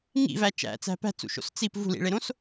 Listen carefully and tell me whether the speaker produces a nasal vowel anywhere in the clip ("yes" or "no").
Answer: yes